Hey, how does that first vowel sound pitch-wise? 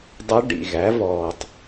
rising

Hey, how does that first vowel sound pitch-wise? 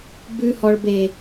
high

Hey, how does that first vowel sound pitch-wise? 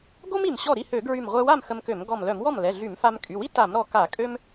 high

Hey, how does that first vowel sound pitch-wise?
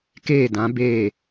falling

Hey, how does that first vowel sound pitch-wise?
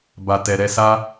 low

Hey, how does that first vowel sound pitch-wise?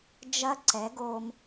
high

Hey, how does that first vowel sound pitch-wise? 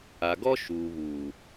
low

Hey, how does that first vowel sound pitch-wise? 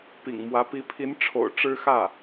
low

